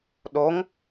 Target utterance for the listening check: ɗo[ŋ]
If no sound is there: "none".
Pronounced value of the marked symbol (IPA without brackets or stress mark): ŋ